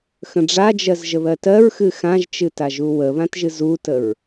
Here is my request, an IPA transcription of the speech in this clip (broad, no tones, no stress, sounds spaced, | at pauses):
x ə̃ ɖ͡ʐ a d͡ʒ ɜ z ʒ ə β ɜ t ɜ ɹ x ɨ x ã ʒ t͡ʃ ɨ t a ʒ u w ə β ã t ʒ ɨ z u t ə ɹ